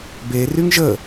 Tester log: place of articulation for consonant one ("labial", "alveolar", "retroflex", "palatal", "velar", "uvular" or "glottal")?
labial